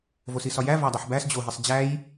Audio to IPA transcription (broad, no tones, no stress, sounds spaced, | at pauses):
v o s i s ɒ j æ v æ dˤ u ħ b æ s d͡ʑ o ɦ i sˤ d͡ʑ æ j